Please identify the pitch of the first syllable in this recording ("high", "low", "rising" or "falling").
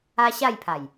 high